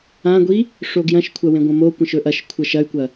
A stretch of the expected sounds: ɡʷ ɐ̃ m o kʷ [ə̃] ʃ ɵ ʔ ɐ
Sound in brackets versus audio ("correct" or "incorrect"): incorrect